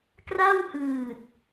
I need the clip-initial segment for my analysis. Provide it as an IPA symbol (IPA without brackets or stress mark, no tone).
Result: k